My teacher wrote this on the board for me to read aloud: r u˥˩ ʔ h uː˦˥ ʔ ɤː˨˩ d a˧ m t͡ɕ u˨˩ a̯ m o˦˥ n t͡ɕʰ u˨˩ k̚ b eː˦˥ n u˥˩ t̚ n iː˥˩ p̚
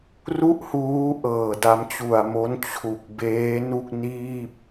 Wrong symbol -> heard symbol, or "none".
t̚ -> k̚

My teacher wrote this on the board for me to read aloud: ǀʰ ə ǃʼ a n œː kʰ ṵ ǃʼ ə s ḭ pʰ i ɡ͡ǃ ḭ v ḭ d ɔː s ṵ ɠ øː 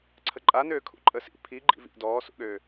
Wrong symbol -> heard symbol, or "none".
œː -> øː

